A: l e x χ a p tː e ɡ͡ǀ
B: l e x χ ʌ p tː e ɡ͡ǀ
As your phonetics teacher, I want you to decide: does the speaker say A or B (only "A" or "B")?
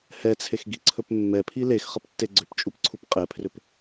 B